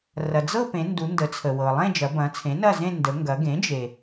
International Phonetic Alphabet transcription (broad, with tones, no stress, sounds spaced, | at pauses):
r ɐ˩ d͡z ɤ˥˧ p ẽ˩˧ n d u˩˧ n d ə˩˥ t͡sʰ ə˩ w ɤ˩ lˠ ẽ˥˧ d͡ʒ ɐ˩˧ b ɐ̃˩˧ t͡sʰ ẽ˩˥ n ɐ˥˧ z ẽ˥˧ n d ə˩˧ ŋ ɡ ɐ˩˧ ɡ ẽ˩˥ d͡ʒ e˩